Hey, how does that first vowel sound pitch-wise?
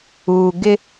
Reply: low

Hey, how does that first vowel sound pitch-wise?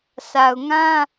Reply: low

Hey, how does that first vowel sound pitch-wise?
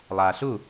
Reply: low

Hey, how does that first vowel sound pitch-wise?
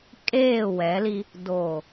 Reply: falling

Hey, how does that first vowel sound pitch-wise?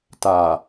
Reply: low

